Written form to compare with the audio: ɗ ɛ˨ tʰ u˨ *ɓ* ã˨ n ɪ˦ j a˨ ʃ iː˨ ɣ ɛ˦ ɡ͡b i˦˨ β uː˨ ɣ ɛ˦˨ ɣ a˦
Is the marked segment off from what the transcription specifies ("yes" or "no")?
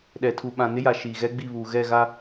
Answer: no